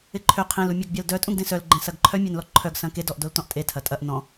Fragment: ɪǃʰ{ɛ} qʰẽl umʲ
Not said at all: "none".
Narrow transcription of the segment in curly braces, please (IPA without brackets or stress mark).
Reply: ø